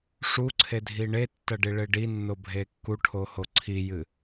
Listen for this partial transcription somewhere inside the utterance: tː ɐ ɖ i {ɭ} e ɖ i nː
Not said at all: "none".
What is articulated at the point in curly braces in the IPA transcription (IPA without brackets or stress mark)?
ɭ